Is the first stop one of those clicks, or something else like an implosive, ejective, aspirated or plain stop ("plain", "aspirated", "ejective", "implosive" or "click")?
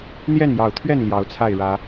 aspirated